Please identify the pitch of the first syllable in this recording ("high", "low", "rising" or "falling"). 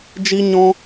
high